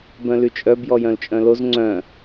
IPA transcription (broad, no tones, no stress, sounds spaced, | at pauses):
b œ̃ l y t͡ʃʼ œ b j ɔ j œ̃ l t͡ʃʼ œ̃ l o z ŋ͡ǀ œ̃